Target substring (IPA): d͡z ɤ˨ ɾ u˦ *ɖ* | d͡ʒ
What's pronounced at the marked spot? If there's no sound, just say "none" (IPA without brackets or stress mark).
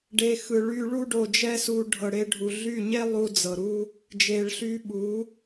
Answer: none